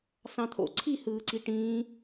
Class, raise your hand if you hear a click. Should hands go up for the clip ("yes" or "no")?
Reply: yes